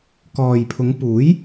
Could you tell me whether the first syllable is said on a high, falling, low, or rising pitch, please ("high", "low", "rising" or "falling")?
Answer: low